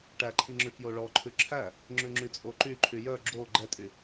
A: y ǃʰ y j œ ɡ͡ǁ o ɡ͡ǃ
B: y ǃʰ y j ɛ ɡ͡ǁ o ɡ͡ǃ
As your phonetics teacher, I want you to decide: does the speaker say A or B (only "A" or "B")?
A